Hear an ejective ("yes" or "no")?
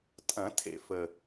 yes